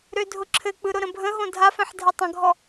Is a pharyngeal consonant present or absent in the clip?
present